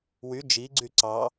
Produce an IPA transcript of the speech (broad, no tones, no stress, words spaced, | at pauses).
wy d͡ʒiɡ͡ǀy ǀɑ